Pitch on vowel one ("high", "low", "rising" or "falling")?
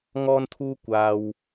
high